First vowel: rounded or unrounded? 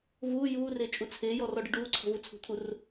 rounded